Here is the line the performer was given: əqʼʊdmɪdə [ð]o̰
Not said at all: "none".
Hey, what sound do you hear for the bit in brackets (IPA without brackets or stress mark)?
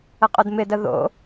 ð